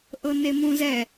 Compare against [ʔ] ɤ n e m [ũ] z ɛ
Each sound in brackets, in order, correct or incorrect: correct, correct

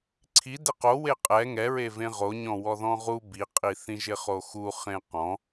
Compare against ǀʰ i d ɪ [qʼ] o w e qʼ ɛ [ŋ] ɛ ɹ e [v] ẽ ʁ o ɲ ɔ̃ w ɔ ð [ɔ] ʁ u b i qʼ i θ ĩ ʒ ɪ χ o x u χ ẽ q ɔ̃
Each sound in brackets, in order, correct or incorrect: incorrect: q, correct, correct, incorrect: ɔ̃

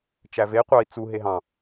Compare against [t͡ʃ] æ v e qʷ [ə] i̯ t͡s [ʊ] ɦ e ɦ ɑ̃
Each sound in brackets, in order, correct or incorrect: correct, incorrect: ɑ, incorrect: u

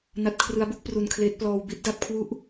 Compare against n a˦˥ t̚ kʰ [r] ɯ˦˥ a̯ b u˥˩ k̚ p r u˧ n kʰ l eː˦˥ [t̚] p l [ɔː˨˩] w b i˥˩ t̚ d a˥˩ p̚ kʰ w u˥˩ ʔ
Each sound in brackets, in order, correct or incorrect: correct, correct, incorrect: ɔː˧

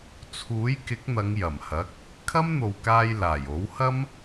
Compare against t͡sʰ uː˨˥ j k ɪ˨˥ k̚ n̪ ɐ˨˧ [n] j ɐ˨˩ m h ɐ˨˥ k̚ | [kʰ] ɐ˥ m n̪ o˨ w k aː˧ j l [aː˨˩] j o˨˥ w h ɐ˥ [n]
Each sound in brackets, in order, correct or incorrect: incorrect: ŋ, correct, correct, incorrect: m

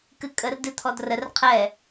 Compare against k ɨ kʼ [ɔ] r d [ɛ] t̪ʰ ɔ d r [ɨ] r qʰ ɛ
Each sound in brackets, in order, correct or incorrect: incorrect: ə, incorrect: ɨ, incorrect: ə

